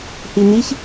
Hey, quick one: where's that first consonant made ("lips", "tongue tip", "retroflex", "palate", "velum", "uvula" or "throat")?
throat